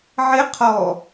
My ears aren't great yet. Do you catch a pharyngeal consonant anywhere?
yes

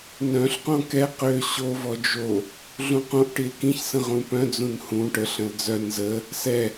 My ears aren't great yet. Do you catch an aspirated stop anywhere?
no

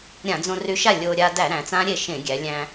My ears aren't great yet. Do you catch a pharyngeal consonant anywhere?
no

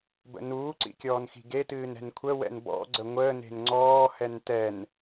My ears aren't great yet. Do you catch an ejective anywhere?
no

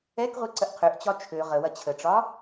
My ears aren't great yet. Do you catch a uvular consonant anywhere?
yes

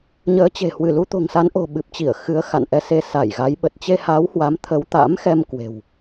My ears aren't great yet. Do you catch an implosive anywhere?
yes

